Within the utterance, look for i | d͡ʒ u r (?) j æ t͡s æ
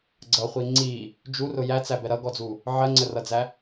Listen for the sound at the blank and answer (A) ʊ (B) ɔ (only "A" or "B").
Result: A